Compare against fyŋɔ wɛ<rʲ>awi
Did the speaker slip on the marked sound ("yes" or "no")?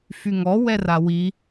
yes